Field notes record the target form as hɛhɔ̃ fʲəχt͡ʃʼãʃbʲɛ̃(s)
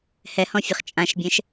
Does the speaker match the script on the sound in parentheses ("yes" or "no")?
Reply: no